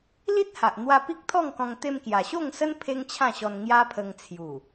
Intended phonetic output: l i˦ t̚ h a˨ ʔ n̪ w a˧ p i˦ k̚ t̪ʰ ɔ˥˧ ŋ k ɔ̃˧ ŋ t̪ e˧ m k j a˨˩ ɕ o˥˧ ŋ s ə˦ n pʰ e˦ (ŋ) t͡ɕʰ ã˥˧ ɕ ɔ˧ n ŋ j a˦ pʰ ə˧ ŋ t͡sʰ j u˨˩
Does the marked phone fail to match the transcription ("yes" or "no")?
no